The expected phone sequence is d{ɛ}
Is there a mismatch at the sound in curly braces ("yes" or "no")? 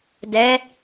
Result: no